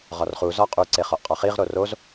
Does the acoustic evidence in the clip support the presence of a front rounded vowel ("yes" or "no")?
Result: no